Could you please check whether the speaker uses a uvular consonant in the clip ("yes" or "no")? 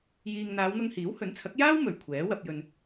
no